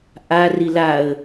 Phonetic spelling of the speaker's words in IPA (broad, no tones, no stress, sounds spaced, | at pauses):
ʔ a r i l a ə̯